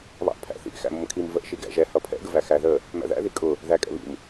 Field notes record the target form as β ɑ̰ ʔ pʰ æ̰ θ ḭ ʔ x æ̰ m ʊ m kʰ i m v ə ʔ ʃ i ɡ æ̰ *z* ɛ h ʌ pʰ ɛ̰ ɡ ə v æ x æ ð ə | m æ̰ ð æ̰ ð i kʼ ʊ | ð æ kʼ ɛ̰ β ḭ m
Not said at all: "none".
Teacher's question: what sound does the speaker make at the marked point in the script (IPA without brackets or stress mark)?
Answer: ʒ